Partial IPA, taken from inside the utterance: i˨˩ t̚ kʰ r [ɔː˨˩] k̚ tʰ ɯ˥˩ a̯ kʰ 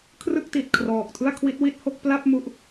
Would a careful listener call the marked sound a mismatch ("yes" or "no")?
no